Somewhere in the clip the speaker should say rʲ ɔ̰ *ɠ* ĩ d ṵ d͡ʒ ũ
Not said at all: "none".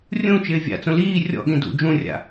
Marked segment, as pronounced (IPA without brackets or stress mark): ɠ